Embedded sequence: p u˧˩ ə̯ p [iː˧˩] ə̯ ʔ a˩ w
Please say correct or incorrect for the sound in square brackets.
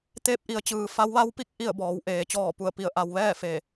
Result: incorrect